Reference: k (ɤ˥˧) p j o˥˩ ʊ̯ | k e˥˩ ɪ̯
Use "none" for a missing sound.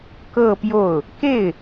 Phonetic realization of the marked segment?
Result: ɤ˥˧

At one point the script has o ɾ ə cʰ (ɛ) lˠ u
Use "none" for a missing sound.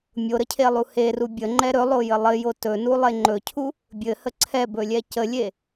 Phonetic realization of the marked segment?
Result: e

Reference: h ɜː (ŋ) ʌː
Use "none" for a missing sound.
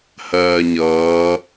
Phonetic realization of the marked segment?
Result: ɲ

